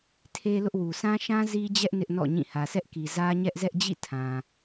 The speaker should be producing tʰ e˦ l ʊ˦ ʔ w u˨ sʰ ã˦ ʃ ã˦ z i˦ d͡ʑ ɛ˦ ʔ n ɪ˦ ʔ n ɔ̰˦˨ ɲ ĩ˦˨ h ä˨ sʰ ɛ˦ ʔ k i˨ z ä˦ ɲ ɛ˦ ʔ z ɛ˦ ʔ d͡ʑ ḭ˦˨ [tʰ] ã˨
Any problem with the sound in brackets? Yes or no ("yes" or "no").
no